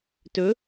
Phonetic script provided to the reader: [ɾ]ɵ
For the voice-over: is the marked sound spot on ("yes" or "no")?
no